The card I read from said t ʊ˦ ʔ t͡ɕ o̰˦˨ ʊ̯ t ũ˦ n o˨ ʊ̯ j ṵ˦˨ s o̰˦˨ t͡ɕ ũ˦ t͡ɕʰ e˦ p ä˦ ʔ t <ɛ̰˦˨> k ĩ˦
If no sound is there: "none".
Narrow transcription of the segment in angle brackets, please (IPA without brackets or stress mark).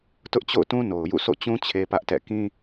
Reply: ɛ̰˦˨